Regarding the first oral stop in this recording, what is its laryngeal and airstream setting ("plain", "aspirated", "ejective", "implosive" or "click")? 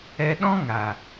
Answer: implosive